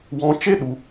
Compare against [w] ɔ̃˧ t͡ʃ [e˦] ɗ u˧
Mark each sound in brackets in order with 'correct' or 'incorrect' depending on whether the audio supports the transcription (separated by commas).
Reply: correct, correct